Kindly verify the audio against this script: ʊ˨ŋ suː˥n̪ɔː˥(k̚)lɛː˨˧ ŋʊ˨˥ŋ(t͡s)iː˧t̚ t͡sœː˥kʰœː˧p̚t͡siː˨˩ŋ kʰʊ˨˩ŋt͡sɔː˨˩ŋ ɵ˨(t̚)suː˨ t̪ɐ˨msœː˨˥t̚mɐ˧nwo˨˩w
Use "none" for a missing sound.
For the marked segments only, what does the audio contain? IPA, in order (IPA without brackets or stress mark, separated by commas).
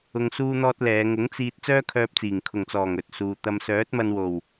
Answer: t̚, t͡s, t̚